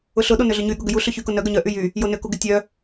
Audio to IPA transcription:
ʊ ɬ ʊ ɗ o n ʏ ɮ ʏ ɲ y ɠ ʊ ɡ ʏ j u ɬ ʏ ç y k ʊ n œ ɡ œ ɲ œ ʔ y j y | j o n ʏ k u ɡ ʏ tʲ œ

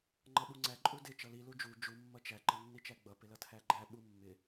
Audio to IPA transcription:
ŋ͡ǃ ʌ ɓ u ŋ͡ǀ æ ǃʼ u d ɪ t͡ʃ ʌ l i l u d͡ʒ u d͡ʒ u mː ʌ t͡ʃ æ ǃ ʌ nː i t͡ʃ æ ɡ͡b ʌ p ɪ l ʌ tʰ æ ɡ͡ǃ æ ɓ u mː ɪ

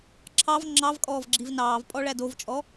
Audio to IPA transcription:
ǁʰ ɑ v ŋ͡ǁ ɑ v kʼ ɔː v ɡ͡ǁ i v n ɑː v pʼ ɔ ɭ æ d o v t͡ʃʼ ɔ

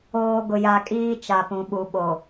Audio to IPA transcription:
oː˨ ɡ ʊ˨ j a˨ kʼ iː˦ t͡ʃ a˨ p ũ˨ ɓ u˨ ɓ o˨

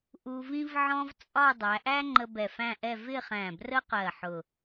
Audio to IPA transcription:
ʔ u˧ v ĩ˥ v ʕ ɔ̃˥ v t͡sʼ ɒ˥˧ dˤ æ˩˧ ʔ æ˥ ŋ͡ǃ ə˧ b ɛ˧˩ f æ̃˥˧ ʔ ɛ˥˧ v ɪ˥˧ χ æ̃˧˩ b r ə˥ q ɜ˧˩ ħ ʊ˧˩

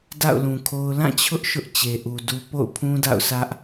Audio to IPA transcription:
d a̰˦˨ ʊ̯ l ũ˨ kʰ o˦ ʊ̯ l ã˦˨ t͡ɕʰ ʊ˦ ʔ ʃ ʊ˦ ʔ t͡ɕ e˨ ʔ u˨ d u˦ p o̰˦˨ ʊ̯ pʰ ũ˦ d a̰˦˨ ʊ̯ s ä˦ ʔ

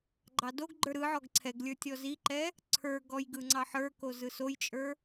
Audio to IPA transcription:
ɡ͡ǃ ɑ d o ɡ ɡ͡ǃ ə˞ ɾ ɯ ʕ ɔ ɡ ǀʰ ɛ ɡ lʲ ə˞ tʲ ɔ z i ǃ ɛ | ǀʰ ə˞ ɡ ɔ j ɡ ɯ ŋ͡ǀ ɑ ħ ə˞ k o z ɯ s o j t͡ʃʼ ə˞

